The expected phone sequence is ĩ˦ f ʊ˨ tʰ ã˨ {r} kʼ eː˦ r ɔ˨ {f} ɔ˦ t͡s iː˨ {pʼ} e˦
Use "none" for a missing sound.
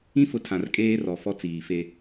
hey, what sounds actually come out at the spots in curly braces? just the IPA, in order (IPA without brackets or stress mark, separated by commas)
r, f, f